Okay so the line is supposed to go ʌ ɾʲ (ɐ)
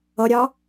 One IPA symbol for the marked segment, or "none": ɑ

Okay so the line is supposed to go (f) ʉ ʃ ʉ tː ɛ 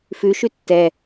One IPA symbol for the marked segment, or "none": f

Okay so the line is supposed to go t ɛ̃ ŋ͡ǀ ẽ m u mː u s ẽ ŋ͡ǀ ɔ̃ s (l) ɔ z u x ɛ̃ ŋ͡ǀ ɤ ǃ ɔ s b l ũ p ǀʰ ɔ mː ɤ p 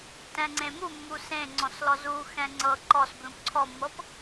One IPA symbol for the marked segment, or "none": l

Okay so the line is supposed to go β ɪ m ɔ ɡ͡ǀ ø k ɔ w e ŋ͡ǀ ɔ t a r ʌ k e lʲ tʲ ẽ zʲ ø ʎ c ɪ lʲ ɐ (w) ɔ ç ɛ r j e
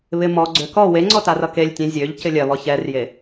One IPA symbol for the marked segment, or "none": β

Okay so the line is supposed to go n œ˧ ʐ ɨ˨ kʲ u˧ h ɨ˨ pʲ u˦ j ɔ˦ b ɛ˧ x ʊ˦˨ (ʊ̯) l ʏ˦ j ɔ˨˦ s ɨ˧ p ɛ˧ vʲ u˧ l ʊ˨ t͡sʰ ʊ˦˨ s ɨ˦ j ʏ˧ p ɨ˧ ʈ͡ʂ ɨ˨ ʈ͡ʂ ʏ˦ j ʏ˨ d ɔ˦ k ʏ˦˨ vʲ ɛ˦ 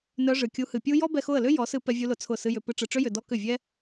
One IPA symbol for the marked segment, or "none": ə̯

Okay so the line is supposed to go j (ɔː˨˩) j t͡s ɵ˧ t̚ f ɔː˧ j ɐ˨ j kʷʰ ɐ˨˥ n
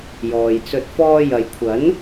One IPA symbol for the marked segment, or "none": ɔː˨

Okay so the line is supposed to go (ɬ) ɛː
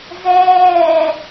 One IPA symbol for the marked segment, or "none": z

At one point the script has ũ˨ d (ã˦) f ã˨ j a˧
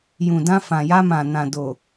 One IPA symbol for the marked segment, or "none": ã˧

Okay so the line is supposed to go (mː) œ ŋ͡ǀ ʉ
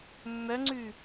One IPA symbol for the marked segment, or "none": mː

